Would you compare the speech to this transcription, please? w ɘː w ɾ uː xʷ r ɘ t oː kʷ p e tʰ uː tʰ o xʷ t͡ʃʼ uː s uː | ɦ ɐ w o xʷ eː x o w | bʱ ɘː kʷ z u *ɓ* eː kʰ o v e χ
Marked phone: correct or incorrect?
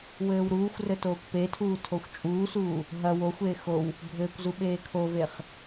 correct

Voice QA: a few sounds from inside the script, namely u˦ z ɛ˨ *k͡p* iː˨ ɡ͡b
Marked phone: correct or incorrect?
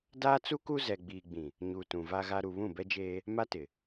incorrect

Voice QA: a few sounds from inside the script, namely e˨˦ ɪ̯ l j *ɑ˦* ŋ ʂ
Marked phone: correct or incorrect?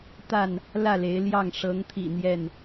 incorrect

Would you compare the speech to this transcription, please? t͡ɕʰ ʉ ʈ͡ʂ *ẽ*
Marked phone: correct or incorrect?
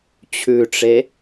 incorrect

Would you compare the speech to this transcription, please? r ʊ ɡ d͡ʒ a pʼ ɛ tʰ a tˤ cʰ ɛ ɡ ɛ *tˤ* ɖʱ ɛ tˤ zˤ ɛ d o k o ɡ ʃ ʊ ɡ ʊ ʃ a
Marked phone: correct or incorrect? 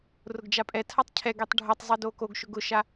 correct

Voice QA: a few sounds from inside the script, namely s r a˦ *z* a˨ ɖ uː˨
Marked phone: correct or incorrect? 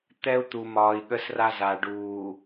correct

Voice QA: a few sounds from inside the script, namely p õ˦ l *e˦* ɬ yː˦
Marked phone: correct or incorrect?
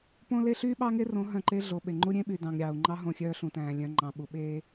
correct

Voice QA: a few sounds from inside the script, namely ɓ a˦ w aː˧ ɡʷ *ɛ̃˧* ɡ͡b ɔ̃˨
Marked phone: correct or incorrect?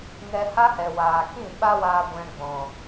correct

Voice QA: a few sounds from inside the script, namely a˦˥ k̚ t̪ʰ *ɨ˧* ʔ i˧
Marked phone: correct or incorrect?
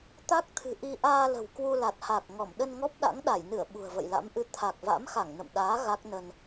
incorrect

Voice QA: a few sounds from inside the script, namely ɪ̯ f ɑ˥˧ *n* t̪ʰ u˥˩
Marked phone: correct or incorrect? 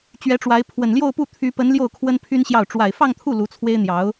incorrect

